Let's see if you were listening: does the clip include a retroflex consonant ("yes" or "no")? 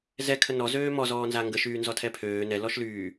no